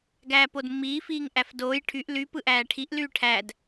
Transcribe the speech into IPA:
ɡ æː p o d mː iː f iː ŋ ʔ æ f d oː j ʈʰ y ʔ l y p ɯ ʔ æː ʈʰ i ʔ l yː ʈʰ æ d

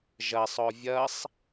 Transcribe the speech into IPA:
ʒ ɐ sˤ ɔ vʲ ɐ sˤ

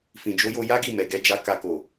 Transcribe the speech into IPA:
f ĩ˨ d͡ʒ o˨˦ j o˧ j a˦ ɡ i˦˨ m ɛ˨ ɡ ɛ˨˦ d͡ʒ a˧ k a˧ k o˨

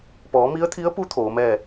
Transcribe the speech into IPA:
p ɔː˩˧ m i˧˥ ə̯ t̪ʰ i˧˥ ə̯ p u˧˥ t̪ʰ oː˩˧ m ɛː˥˨

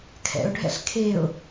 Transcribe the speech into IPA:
kʰ ɛ̰ ʊ̯ ɖʱ ɛ̰ ɬ kʰ e ʊ̯

